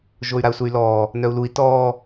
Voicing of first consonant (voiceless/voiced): voiced